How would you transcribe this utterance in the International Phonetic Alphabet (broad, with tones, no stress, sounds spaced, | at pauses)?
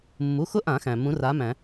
mː u˩˧˩ x ʊ˦˥ ʔ ã˨˩˦ x æ̃˩ m ũ˨˥ r a˨˥ m æ̃˨˩˦